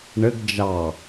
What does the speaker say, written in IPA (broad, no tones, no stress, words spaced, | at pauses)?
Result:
ɳɘɡ d͡ʒɑ